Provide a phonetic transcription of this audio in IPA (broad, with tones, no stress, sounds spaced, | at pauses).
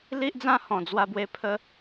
l i˦ ʔ d͡z ã˦ h ɔ̃˨˩ d͡z w a˧ b w e˧ pʰ ə˧